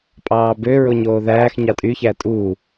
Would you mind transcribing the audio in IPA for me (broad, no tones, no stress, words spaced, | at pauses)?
pʼɑːbø ɹoɲoːðæːx ɲɑtʼy çætʼu